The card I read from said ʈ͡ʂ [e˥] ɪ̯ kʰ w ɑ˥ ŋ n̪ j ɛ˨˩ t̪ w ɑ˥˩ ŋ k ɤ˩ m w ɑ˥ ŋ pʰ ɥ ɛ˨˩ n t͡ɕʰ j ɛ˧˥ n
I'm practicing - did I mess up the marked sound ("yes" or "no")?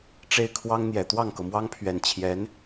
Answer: yes